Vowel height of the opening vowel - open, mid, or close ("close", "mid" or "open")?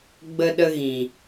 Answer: mid